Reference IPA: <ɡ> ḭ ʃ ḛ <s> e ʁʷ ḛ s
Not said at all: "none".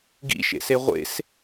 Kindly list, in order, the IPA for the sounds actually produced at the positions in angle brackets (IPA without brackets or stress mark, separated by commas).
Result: ɡ, s